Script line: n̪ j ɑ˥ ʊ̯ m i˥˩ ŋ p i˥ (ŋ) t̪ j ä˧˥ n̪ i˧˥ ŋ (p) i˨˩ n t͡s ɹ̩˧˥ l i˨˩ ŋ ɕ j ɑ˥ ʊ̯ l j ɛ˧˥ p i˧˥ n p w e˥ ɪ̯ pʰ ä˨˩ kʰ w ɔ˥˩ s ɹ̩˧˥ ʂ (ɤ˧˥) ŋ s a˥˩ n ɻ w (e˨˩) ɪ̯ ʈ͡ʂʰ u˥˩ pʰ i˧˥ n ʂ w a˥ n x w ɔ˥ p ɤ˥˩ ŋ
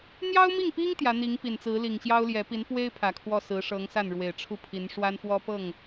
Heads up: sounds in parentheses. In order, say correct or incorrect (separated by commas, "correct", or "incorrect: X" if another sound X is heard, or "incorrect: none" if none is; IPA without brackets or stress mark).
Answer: correct, correct, correct, correct